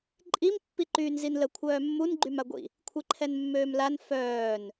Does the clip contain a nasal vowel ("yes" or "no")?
no